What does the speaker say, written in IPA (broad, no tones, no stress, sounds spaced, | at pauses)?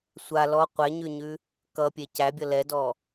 sʷ a l ɔ qʷ ɛ ɲ ʉ ɲ ʉ | k ʌ pʲ e c æ bʲ ʌ l ɛ d ɔ